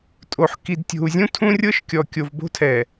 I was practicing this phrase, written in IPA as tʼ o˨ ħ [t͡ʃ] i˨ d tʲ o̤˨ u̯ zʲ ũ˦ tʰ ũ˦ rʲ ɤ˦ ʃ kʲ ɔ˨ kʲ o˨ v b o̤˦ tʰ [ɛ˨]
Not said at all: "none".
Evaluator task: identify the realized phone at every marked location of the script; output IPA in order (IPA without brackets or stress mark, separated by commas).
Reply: k, ɛ˨